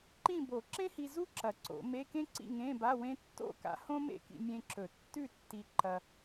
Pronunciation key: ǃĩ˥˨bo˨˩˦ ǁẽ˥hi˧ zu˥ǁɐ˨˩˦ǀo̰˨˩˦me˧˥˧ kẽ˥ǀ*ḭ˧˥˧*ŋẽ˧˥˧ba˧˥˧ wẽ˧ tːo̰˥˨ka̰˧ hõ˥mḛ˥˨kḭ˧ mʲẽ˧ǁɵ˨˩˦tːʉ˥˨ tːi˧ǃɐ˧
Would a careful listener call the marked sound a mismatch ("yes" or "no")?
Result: yes